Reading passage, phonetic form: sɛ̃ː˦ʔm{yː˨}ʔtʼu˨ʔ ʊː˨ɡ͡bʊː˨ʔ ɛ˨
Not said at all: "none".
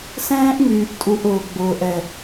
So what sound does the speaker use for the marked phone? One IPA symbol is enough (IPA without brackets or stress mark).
yː˨